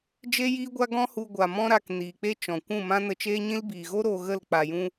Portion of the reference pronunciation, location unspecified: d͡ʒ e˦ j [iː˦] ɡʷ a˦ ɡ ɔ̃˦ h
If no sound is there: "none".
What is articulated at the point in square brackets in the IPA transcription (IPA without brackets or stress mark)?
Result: iː˦